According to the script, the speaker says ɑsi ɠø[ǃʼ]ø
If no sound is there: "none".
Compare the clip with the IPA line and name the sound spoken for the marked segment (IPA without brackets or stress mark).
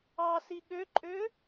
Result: ǃʼ